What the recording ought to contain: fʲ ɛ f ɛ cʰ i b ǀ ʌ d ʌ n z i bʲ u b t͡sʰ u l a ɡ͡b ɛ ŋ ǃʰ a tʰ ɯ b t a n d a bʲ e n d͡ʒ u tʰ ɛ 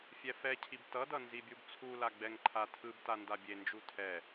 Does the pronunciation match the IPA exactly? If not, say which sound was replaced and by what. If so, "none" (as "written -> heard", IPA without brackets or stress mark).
ǀ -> t